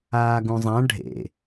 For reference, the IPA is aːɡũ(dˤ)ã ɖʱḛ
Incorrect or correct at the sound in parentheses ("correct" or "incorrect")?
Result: incorrect